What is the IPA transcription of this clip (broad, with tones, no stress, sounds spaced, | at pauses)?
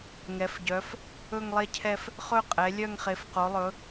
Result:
ŋ ɛ˩˧ f ɟ œ˩˧ f | ɵ˦˨ ŋ lˠ e˦˨ cʰ ɛ˦˨ f | χ ɵ˦˨ qʼ ɛ˩˧ lʲ œ˦˨ ŋ χ e˩˧ f q o˩˧ lˠ ɵ˩˧